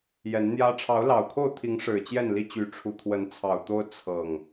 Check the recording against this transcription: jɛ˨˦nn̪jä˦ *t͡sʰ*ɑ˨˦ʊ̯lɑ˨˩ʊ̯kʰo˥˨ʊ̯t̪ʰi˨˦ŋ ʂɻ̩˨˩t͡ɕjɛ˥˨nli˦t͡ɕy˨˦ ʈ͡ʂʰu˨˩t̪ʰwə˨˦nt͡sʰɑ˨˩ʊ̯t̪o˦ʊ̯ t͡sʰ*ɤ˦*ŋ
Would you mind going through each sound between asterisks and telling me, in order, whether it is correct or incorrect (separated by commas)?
incorrect, incorrect